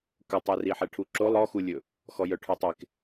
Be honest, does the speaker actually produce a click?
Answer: yes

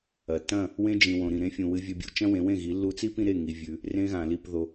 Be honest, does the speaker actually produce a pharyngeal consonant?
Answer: no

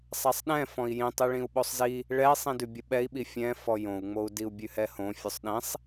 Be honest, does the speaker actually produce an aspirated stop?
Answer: no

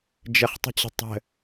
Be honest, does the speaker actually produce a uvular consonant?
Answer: yes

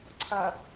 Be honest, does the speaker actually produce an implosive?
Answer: no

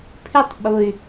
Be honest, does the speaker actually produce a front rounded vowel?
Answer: yes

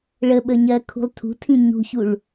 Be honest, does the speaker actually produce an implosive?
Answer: yes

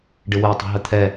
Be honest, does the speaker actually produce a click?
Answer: no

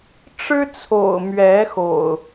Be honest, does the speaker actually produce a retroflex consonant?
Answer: yes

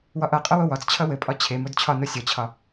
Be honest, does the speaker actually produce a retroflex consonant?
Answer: no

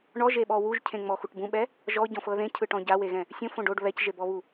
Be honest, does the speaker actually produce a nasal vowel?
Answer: yes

